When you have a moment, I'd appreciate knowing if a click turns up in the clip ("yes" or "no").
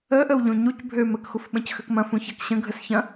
no